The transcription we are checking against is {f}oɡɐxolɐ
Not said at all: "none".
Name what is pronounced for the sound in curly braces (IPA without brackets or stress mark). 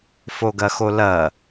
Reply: f